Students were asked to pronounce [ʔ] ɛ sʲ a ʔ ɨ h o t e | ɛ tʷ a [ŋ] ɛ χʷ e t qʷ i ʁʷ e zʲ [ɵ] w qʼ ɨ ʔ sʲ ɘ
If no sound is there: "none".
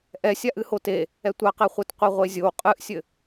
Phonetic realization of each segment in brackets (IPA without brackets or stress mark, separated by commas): ʔ, q, o